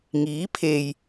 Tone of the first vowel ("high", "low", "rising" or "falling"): rising